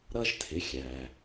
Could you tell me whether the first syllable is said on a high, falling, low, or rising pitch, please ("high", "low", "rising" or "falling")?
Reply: high